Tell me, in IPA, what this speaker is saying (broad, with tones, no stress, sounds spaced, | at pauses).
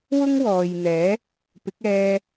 w ʊ˥ ŋ w ɔː˨ j n̪ ɛː˨˥ | p ɪ˨˥ k̚ ɛː˧